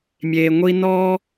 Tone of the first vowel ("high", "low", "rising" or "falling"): low